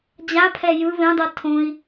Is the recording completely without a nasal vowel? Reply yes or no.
no